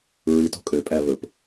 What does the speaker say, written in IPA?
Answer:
ɹ i t o̤ kʼ ø pʼ æ β ɵ p

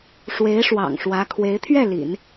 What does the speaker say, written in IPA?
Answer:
ʂ w e˧˥ ɪ̯ ʂ w ɑ̰˨˩ ŋ ʂ w ä˧˥ kʰ w e˧˥ ɪ̯ t̪ʰ ɥ ɛ˥˩ l ḭ˨˩˦ n

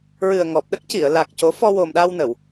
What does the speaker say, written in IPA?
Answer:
ɹ ɨ˨˩ ə̯ ŋ ɔ˨˩ p̚ ɗ ə˦˥ k̚ c i˨˩˨ ə̯ l a˨˩ k̚ c o˨˩˦ f ɔ˧ w o˨˩ m ɗ a˧ w n ə˨˩˨ w

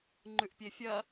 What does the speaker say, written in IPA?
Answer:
ŋ͡ǃ ʉ ʔ pʲ e fʲ ɐ

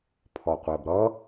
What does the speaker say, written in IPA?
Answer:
pʰ ɔ qʷ ɜ b ɾ ʌ

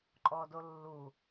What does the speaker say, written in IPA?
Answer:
ǃʼ ɔ d o lː u

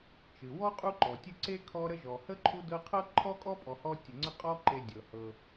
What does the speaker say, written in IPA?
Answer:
t͡ʃ ɨ˩ w ɔ˥ qʼ u˦ ǃ ɔ˩ tʲ ɨ˥ ǀ e˥ kʰ ɔ˦ ɾ ə˦ ʒ ɔ˩ h ə˥ ǃʰ u˦ d ɤ˦ qʰ ɤ˥ ǃʰ ɔ˥ kʼ ɔ˥ pʼ ɔ˨ h ɔ˥ tʲ ə˨ ŋ͡ǀ ə˦ qʼ ɔ˦ ǃ e˨ dʲ ɤ˩ h ɤ˨

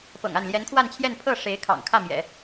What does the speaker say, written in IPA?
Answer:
p ɤ̰˨˩ ŋ a˥˩ n l j ɛ˧˥ n kʰ w a˥˧ n t͡ɕʰ j ɛ˥˧ n pʰ ɤ˥˩ ʂ e˧˥ ɪ̯ kʰ ɑ̰˨˩ ŋ kʰ ä˥˩ m j ɛ̰˨˩˦

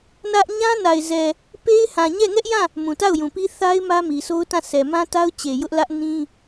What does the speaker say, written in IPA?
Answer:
n ä˦ ʔ ɲ ã˦ n a˨ ɪ̯ z ɛ˨ | p e˦ ɪ̯ h ã˨ ɲ ɛ˦˨ ŋ ɛ˦ ʔ j ã˦˨ | m ũ˨ t a˦˨ ʊ̯ j ũ˨ p i˦ θ a˦ ɪ̯ m ä˦ m i˨ sʰ o˦ ʊ̯ t ã˦˨ s ɛ˨ m ã˦ t a˦ ʊ̯ t͡ɕ e˨ j ʊ˦ ʔ l ä˦ ʔ n ĩ˦

